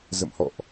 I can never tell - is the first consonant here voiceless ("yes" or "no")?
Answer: no